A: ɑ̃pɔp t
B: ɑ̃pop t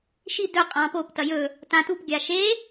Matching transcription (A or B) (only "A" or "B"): B